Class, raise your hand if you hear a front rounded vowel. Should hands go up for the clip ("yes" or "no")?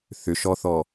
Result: yes